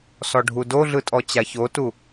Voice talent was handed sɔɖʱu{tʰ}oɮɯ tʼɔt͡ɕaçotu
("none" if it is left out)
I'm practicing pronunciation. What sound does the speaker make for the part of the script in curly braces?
d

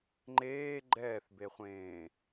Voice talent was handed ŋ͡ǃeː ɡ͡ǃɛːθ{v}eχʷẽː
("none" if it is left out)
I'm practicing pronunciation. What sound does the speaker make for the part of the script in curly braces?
b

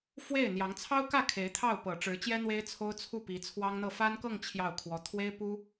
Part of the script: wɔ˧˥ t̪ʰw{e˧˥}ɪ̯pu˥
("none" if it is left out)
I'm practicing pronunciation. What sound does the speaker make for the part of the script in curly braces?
e˥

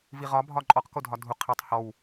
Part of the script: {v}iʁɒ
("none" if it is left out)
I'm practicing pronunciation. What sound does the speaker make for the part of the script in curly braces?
v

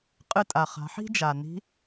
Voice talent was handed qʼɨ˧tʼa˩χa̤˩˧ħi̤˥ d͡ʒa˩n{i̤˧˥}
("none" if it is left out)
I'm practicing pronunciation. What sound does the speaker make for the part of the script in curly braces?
i̤˧˥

